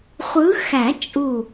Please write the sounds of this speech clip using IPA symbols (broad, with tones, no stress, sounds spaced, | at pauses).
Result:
χʷ ɯ˨˦ x æ˨˩˦ t͡ʃʼ u˧˩